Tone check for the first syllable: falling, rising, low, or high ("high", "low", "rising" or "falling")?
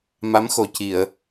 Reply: rising